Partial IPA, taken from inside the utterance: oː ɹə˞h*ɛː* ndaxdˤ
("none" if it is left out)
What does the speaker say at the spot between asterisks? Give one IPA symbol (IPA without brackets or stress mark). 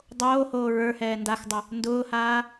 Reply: ɛː